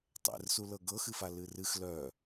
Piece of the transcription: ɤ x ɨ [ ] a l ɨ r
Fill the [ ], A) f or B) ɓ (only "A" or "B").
A